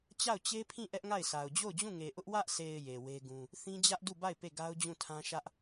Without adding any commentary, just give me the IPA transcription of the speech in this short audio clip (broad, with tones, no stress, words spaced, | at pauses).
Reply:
t͡ɕa˦˨ʊ̯t͡ɕe˦pʰĩ˦˨ ʔɛ˦ʔŋa˦˨ɪ̯sʰa˨ʊ̯ d͡ʑo˦˨ʊ̯d͡ʑũ˦˨ŋe˨ ʔʊ˦ʔ wä˦ʔsʰe˨ɪ̯ je˨we˦ɡũ˦ | θĩ˦d͡ʑä˦ʔdu˦˨ba˦˨ɪ̯ pe˦˨ɡa˦ʊ̯d͡ʑũ˦˨tʰã˦ ʃä˦ʔ